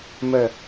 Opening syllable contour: low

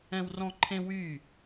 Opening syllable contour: high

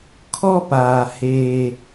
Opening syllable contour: high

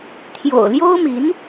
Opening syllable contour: low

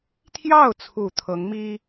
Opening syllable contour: falling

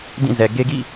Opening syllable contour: falling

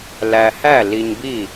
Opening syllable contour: low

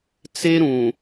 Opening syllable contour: high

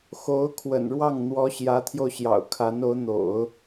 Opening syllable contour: rising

